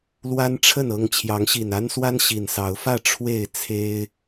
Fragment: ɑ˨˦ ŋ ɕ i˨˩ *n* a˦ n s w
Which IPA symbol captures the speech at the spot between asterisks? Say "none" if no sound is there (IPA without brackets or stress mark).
n